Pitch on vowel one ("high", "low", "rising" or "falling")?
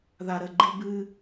low